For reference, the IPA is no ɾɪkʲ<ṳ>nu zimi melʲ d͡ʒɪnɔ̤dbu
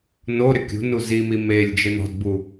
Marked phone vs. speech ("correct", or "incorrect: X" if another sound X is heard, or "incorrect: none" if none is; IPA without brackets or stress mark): correct